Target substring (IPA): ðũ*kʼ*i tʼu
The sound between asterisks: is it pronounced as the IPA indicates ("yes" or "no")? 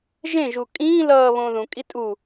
yes